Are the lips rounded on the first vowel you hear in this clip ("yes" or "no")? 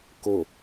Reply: yes